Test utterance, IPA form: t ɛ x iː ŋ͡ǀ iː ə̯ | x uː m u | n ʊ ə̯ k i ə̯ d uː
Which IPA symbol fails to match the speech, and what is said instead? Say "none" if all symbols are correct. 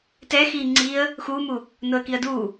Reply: none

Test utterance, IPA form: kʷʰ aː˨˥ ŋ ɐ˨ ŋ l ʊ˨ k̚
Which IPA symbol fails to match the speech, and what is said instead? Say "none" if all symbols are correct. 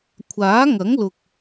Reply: ɐ˨ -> ɐ˨˥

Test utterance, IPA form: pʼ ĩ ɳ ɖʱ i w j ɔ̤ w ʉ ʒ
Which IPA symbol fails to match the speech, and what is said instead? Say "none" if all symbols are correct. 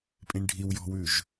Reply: none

